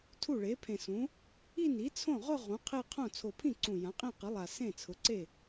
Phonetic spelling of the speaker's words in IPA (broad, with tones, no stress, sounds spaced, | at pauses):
tʰ u˥˩ ɭ e˩˥ pʰ ẽ˨˩ s ũ˩˥ | i˥˧ n i˩˥ t͡sʰ õ˥˩ ʁ ʊ˥˧ ʁ ũ˩˥ qʰ e˥˧ qʰ õ˥˩ t͡sʰ o˨˩ pʰ ĩ˥˩ ǀ ũ˨˩ j ã˩˥ qʼ ĩ˥˩ q i˩˥ lˠ a˨˩ s ẽ˥˩ t͡sʰ ʊ˩˥ ǀ e˥˩